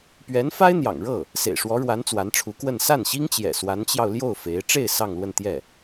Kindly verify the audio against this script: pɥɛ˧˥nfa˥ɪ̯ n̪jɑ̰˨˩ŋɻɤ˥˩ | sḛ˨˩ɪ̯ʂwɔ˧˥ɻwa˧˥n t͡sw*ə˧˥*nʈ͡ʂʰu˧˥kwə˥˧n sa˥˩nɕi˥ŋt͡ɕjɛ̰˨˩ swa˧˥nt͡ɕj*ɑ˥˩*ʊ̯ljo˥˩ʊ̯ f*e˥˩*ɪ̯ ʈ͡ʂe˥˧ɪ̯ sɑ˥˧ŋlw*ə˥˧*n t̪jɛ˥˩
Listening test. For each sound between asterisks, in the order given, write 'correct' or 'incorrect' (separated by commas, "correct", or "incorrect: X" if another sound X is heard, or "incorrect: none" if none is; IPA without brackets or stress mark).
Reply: incorrect: a˧˥, incorrect: ɑ˧, incorrect: e˧˥, correct